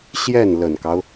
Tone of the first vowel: falling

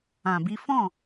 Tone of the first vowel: low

